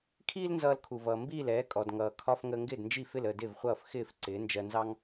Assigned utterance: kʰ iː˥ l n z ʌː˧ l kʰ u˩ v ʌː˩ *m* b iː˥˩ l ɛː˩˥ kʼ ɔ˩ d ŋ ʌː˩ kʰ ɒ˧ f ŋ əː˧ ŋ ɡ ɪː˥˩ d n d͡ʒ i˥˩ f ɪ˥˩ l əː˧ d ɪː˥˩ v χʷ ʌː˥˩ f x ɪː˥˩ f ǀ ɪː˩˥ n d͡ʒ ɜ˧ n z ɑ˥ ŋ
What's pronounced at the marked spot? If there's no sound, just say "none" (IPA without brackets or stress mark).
m